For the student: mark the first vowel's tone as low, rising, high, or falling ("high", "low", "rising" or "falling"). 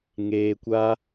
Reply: low